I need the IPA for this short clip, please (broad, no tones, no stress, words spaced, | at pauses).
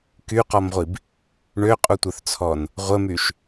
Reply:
kyqɔmʁʷib | ɳøqʼutʷœθt͡sʰɔn | ʁʷəmyʃ